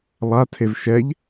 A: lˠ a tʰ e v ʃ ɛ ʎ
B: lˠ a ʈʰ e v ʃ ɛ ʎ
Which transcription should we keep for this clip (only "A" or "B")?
A